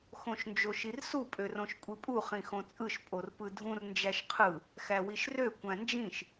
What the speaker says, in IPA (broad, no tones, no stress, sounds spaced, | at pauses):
x õ ʃ n d͡ʒ o ʃ i r s u pʼ ø r õ ʃ kʷʼ i pʼ u χ ĩ x õ t͡sʼ ɯ ʃ pʼ o r p ɯ dʱ ũ r n d͡ʒ æ ʃ qʰ ɯ | x æ w i ʃ r ø kʷ æ̃ n d͡ʒ ĩ ʃ